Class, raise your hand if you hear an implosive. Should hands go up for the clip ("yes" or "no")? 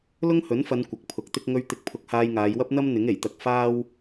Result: no